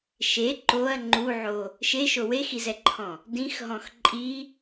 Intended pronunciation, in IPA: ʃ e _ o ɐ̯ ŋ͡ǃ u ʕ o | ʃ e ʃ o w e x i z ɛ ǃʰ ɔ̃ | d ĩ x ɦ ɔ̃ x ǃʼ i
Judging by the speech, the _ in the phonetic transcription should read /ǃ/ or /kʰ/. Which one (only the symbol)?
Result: ǃ